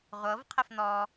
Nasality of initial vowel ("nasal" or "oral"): oral